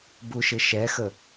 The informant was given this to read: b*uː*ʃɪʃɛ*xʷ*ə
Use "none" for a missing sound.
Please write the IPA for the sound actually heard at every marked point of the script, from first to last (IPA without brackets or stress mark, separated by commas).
u, x